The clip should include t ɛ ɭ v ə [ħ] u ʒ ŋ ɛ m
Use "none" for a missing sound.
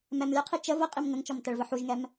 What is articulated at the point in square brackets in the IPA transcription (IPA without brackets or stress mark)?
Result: ħ